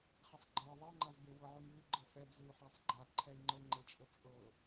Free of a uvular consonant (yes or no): no